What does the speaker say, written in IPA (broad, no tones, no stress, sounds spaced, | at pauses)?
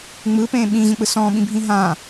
ŋ͡m ɯː p ẽː ɓ ĩ ʑ ə̃ k͡p ɯ s ɔ̃ː ɓ ĩ bʱ ĩ ɦ ã